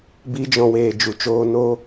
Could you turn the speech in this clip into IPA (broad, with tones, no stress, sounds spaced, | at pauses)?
b i˧ d͡ʒ ɔ̃˨ w eː˨ d͡ʒ u˨ t͡ʃ oː˧ n oː˦